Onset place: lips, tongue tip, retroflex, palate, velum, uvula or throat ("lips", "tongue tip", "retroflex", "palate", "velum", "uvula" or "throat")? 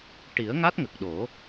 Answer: retroflex